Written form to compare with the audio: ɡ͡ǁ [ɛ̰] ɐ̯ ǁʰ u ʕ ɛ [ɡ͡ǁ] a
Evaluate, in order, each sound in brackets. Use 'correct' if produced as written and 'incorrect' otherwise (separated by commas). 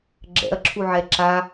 correct, incorrect